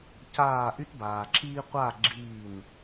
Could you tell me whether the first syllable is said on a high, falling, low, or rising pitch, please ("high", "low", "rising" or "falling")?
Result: falling